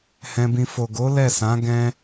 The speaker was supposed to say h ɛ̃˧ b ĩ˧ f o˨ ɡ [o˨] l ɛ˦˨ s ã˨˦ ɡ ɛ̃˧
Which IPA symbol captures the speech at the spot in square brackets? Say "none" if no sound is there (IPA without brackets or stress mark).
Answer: o˨˦